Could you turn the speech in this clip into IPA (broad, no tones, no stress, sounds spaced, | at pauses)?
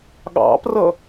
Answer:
ɠ ɑ̰ p r ʌ